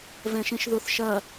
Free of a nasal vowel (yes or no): no